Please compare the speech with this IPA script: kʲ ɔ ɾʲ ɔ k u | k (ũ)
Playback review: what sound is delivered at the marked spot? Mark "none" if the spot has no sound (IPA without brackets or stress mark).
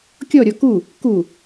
u